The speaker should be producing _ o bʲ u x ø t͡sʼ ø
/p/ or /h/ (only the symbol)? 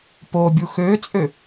p